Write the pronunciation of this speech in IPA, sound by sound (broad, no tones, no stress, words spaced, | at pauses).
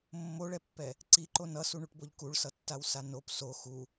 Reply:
mːoɭɛpːɛ | ǀiǃo nʌsuɳuʈboʎ kuɭsʌtːawsa nop so xu